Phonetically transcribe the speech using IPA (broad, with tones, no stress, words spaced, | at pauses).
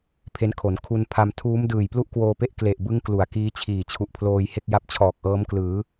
pʰe˦˥nkʰo˩˦n kʰu˧npʰa˧m tʰuː˦˥m dɯː˨˩jplu˥˩ʔkwoː˧pe˦˥ʔ kle˨˩ʔbɯ˦˥ŋ klu˩˦a̯kiː˦˥t͡ɕʰiː˨˩ t͡ɕʰu˨˩ʔpʰloː˧jhe˥˩k̚ ja˦˥p̚t͡ɕʰɔː˨˩k̚ʔɤː˦˥mklɯː˩˦